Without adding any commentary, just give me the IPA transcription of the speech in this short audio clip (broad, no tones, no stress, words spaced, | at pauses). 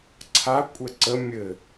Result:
ǀʰa kʷʼɛǀə mʲɘ